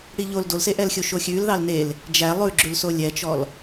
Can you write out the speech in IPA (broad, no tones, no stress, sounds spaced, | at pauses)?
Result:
ɽ i ʎ o l d o l s e ʔ ɛ l xʲ o ʃ o xʲ ʉ l ð ɑ l n e l | d͡ʒ æ lˠ ʉ ɡ͡ǁ ʉ l s o lʲ ɛ t͡ʃ ɔ l